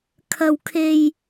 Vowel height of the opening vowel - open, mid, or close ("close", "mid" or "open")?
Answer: open